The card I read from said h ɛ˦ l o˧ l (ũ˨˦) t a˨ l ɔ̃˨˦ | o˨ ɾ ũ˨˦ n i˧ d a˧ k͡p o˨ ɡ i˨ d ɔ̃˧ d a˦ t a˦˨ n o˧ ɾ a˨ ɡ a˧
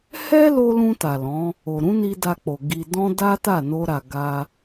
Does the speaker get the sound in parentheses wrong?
yes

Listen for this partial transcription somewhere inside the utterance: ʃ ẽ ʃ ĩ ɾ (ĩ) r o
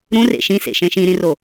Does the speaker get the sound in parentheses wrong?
no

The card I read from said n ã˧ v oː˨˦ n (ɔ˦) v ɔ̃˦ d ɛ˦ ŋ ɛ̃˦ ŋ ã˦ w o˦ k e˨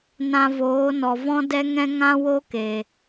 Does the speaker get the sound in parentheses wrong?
yes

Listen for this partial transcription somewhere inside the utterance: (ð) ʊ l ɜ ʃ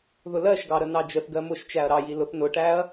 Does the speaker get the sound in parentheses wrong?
no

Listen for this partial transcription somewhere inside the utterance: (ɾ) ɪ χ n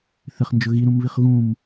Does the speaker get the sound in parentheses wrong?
yes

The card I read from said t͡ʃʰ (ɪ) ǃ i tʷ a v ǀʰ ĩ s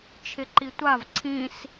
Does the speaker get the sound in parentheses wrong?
no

